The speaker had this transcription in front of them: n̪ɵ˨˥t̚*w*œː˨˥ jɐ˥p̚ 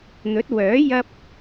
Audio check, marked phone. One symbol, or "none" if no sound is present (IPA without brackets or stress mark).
w